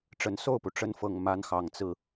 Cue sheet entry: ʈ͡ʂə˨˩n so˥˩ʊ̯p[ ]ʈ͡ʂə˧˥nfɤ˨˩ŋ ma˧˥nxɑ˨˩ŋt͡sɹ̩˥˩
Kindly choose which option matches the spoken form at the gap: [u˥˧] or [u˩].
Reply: u˩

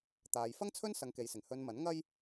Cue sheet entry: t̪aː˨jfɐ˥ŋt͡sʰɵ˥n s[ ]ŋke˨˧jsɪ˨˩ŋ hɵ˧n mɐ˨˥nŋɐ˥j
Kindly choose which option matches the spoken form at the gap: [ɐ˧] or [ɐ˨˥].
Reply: ɐ˧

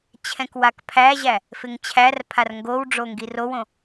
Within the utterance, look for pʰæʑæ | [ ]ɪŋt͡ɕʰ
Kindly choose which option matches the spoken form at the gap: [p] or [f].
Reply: f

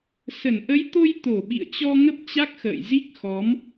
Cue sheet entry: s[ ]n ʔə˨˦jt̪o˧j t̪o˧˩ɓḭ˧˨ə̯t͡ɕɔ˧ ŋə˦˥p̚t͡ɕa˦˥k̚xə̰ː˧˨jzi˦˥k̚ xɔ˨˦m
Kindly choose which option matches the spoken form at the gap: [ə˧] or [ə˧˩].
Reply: ə˧˩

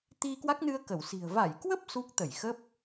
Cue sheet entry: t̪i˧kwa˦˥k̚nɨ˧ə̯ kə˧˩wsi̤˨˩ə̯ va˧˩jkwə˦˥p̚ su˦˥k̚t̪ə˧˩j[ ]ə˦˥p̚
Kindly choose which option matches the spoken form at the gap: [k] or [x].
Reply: x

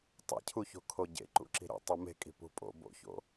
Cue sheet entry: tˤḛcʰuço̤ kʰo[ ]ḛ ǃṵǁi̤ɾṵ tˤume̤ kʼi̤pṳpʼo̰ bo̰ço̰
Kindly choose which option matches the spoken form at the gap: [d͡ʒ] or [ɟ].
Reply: ɟ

